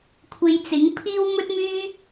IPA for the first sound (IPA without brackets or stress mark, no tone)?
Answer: kʷʰ